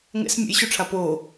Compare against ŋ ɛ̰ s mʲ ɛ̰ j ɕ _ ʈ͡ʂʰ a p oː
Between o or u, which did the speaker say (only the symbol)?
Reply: u